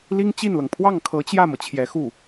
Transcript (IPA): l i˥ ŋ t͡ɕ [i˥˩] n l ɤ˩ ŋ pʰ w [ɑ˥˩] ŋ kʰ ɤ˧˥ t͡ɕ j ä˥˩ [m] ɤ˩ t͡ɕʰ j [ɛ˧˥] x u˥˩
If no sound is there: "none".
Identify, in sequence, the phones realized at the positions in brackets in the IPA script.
i˥˩, ɑ˥˩, m, ɛ˧˥

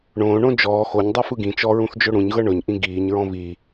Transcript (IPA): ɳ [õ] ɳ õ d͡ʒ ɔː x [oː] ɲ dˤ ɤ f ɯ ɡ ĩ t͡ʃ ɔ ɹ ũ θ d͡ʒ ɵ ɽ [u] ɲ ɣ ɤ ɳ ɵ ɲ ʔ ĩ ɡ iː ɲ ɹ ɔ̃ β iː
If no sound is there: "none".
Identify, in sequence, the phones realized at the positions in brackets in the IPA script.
õː, o, ũ

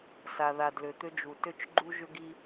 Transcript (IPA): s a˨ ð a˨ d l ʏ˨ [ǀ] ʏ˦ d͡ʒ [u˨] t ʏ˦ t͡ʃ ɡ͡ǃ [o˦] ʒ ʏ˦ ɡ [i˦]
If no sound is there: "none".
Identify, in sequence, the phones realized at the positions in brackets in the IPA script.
t̪, u˨, u˦, i˦

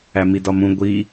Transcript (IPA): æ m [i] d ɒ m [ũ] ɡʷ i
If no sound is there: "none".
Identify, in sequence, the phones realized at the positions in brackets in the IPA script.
i, ũ

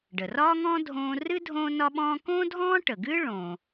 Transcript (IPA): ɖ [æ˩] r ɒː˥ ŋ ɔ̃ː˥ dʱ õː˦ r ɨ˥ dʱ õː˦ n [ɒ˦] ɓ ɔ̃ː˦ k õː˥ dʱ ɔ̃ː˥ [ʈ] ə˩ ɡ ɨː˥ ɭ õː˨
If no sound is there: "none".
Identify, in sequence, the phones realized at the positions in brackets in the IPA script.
ə˩, ɒ˦, ʈ

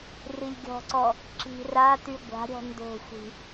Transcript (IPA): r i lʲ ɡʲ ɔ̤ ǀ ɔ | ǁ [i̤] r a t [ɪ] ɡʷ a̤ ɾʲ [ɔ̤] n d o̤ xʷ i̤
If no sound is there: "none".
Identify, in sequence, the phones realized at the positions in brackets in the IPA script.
i̤, y, ɔ̤

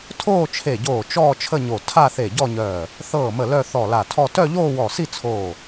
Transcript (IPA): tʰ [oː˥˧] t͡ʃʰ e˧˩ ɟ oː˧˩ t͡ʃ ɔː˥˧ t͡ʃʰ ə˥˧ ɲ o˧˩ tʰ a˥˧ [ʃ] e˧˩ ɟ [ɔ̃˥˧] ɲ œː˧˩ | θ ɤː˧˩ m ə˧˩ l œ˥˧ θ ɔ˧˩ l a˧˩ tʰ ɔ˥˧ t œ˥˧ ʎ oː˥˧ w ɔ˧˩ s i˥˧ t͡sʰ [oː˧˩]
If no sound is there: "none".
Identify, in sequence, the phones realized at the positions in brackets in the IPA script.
oː˥˧, θ, ɔ˥˧, oː˧˩

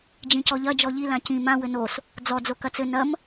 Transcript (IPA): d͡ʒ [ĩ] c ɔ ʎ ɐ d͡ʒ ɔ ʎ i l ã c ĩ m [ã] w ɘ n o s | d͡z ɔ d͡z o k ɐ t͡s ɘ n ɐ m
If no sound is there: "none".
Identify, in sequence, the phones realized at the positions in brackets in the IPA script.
ĩ, ã

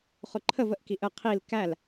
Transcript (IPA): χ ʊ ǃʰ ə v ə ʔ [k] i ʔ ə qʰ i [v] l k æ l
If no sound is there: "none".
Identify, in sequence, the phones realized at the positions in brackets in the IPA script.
k, none

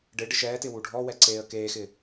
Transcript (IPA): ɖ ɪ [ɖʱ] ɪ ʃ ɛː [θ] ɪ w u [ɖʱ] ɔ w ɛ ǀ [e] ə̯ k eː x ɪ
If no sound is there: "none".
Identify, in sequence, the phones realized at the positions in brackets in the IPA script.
ɖ, t, ɖʱ, eː

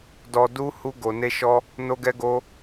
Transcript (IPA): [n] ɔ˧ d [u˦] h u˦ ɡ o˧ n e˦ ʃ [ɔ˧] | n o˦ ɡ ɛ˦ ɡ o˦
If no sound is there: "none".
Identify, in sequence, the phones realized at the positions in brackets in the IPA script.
d, u˦, ɔ˦

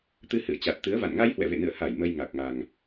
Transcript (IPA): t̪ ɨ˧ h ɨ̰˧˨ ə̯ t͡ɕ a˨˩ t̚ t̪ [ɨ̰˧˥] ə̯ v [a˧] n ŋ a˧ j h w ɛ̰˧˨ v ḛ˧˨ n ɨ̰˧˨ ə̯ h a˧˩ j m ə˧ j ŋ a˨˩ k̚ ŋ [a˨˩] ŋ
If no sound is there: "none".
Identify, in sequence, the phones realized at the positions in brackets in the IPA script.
ɨ˨˦, a̰˧˨, a˨˩

